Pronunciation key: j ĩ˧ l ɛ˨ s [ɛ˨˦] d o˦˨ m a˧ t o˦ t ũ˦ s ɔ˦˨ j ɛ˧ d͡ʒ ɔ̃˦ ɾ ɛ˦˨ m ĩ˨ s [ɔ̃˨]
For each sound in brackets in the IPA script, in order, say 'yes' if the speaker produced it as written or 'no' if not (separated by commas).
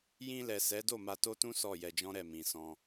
yes, no